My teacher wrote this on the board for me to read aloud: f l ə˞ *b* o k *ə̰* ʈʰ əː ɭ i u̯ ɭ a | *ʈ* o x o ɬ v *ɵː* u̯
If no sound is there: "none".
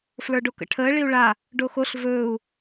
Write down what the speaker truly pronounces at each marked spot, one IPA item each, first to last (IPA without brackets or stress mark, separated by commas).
ɖ, ə̰, ɖ, ɵː